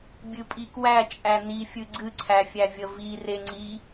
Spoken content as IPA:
bʲɨpʼikwæ t͡ʃʼænifʲɨ ɡ͡ǀɨǀʰæfʲæ vʲəvi reŋ͡ǀi

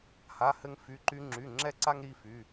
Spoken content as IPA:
ha˧˥˧hɘ˥ŋ fy˧˥˧ǃy˥ŋ͡ǁy˧˥˧ ŋ͡ǁɛ˥ǀa˥ŋ ɾi˧˥˧fy˧˥˧

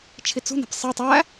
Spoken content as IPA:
t͡ʃʰit͡sṳne̤p sˤe tˤæ

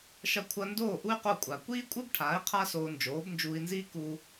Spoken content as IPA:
ʃɐ˧kʷʰɐ˧ndoː˥˩ ʔu˥y̯qo˥˩kʷʼa˩ kʷiː˥kʷʼɨ˥bʈʰaː˩˥i̯ qʰa˥soː˧ nd͡ʒoː˩˥bnd͡ʒuː˧i̯nziː˥ ku˧

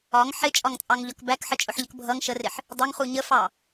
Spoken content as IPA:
ɒŋ ħɪt͡ʃʼɒŋt͡sʼɑŋʎɒk bækħət͡ʃʼʊħʎək bʱʌŋ ʃərɪħ | dˤʊŋχu ɲəfɑ

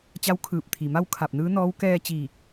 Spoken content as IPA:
t͡ɕa˧˥wkʰɯː˧˩p̚t̪ʰi˩ma˥˨w kʰa˧˩p̚nɯː˧˥nɔː˧˥w kɛː˧t͡ɕiː˧˩k̚

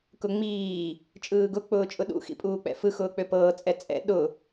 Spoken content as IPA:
kʊŋ͡miː | t͡ʃʼɯːɡʊ k͡pʊːt͡ʃʼʊɗṵ xḭpʼuːk͡pɛ̰fɯ xʊːk͡pøpɤː t͡sʼɛt͡sʼɛ̰ ɗʊ

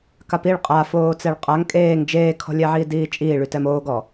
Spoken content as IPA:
kapiɭ qʼafoː t͡sɛɭqʼaŋ kʼeːŋ d͡ʒeːkʰɔ̤lʲɛ ʕiːdiːt͡ʃʼiː ɭytɛmoːɡɔ

